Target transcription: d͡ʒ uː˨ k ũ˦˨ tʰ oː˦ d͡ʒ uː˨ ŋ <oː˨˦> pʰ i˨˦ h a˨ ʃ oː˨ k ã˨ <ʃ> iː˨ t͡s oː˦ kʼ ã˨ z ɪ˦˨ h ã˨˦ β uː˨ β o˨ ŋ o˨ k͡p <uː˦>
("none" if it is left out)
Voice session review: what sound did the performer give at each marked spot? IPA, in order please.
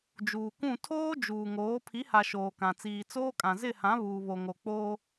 oː˨˦, t͡s, oː˦

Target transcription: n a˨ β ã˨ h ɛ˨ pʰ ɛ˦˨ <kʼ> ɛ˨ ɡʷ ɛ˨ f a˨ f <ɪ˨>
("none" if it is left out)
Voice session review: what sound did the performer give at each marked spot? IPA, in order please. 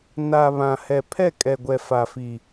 kʼ, i˨

